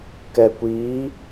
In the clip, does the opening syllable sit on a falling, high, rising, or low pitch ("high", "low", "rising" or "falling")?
low